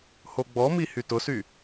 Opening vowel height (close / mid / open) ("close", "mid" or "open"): mid